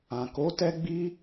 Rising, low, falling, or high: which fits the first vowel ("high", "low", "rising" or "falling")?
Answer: low